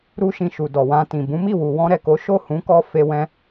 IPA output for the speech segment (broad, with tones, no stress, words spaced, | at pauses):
ɾu˦ʃĩ˧ʃu˨ dɔ˨wã˧tĩ˨ bũ˨˦mi˦˨wu˨ wɔ̃˧ɾɛ˨ko˨˦ ʃo˦˨hũ˨˦kɔ˧ fe˧wɛ̃˧